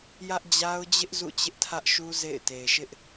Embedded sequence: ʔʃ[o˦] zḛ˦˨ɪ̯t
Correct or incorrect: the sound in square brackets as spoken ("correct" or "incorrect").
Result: incorrect